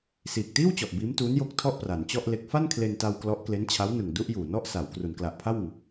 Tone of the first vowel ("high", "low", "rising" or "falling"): low